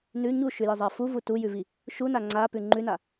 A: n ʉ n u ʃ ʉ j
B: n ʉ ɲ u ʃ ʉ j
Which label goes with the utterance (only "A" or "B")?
B